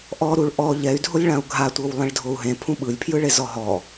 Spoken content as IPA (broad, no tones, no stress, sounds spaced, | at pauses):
ʔ ɔ ɾ u ɭ ʔ ɔ ʎ ɛ y̯ dʱ o lʲ ɭ ã u̯ ɡʱ a tʷ ɤ w lˠ ẽ ɭ dʱ o u̯ ɦ ẽ pʰ ũ ɓ ɯ lʲ pʰ j ɯ ɭ e z ɔ ɦ ɔ